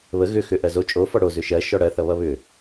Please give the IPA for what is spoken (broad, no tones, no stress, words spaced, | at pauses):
βə ɣʏ xʏ ʔɜzo t͡ʃʼofɔ ɽo zʏʃɜ ʃɔɽɜθʌβʌ βʏ